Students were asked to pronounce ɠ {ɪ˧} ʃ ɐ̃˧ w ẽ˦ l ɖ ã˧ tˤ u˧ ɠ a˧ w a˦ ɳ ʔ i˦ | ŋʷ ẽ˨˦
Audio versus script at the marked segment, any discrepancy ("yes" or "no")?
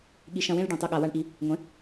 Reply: yes